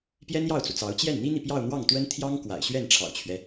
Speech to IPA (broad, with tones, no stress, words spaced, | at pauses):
pjɛ˥njɑ˥˩ʊ̯t͡su˩t͡sɑ˧˥ʊ̯ t͡ɕjɛ˥˩nn̪i˥n̪i˨ pjɑ˥˧ʊ̯n̪wɑ˥˩ŋt̪wə˥nt̪ʰjɑ˥ŋ kwa̰˨˩ɪ̯ɕɥɛ˥˩nʈ͡ʂʰɑ̰˨˩ʊ̯t͡ɕʰɥɛ˦